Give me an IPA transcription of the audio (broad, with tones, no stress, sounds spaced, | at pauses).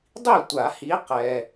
dˤ i˥˩ tʷ a˨˩˦ h i˨˦ q ɛ˩